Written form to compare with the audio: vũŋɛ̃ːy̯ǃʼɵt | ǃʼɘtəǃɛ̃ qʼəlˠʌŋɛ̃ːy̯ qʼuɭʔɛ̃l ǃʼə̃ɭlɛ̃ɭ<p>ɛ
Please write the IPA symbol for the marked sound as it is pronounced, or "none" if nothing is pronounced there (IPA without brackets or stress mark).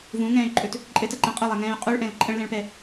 p